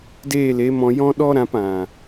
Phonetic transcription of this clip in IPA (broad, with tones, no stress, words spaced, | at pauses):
deː˦˨le˨˦ mɔ̃˧jɔ̃˦ ɗɔ˦ɾã˧p ã˨